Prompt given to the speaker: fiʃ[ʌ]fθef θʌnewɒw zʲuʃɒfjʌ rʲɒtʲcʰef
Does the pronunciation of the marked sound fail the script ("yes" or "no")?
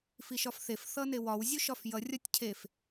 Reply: yes